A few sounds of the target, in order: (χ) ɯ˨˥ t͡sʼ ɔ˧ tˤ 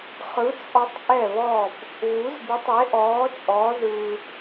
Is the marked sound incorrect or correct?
correct